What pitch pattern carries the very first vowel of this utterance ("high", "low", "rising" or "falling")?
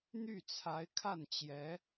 falling